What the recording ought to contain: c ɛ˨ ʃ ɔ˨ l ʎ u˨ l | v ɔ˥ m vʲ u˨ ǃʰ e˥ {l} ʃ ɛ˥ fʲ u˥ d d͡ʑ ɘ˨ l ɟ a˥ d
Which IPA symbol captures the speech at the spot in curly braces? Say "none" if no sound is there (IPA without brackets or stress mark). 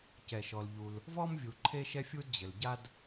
none